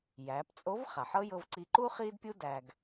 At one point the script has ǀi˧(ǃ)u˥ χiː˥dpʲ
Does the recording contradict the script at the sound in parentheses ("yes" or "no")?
no